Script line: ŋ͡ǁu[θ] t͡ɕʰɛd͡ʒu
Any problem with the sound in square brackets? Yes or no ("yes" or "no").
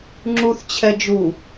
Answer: no